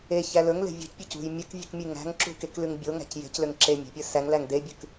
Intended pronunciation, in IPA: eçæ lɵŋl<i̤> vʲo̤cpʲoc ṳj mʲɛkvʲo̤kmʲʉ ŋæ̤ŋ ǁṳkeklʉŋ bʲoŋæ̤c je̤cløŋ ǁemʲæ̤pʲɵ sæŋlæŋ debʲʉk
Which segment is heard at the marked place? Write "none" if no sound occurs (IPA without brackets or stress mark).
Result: e̤